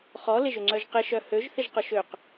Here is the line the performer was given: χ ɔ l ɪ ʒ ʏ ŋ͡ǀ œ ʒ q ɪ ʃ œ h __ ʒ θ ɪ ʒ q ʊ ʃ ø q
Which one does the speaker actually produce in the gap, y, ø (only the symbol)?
ø